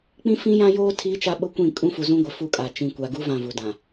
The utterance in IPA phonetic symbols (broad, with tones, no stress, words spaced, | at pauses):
k͡pĩ˦fĩ˦jã˦joː˦ tʰiː˦t͡ʃa˦ ɓʊ˦kʷĩ˦˨ kʼũ˦fu˨zũ˦ɡʷɪ˨ fu˦kʼa˨ t͡ʃĩ˨kʷa˨ɡu˦ vã˦˨vu˨dã˨